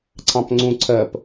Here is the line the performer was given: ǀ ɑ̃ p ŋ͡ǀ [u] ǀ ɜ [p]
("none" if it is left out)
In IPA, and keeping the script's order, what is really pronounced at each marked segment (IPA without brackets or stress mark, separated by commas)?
ũ, p